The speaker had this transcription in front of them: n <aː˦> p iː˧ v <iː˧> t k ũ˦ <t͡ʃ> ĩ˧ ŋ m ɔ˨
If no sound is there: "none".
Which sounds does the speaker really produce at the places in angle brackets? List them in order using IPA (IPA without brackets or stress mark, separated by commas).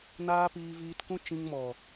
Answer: aː˦, iː˧, t͡ʃ